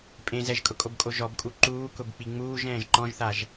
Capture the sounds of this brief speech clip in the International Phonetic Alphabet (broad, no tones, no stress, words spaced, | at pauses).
pʼẽ zɛʒkʼʊkʼobkʼo ʒɔbkʼu ǃuːkʊbk͡pi ŋ͡muːʒɛ̃ːʒ ǃɔ̃ʒθaʒ